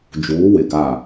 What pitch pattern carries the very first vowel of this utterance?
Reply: rising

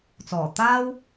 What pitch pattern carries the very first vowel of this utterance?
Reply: low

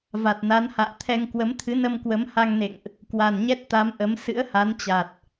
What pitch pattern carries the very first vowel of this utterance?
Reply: low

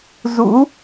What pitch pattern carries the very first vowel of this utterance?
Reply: rising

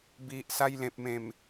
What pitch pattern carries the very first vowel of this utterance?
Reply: low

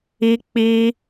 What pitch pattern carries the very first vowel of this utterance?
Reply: high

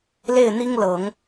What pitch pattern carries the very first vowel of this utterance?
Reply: falling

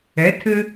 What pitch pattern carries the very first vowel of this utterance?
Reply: rising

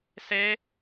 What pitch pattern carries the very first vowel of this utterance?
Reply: high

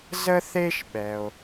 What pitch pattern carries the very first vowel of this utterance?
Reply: high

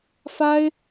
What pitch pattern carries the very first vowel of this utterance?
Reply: high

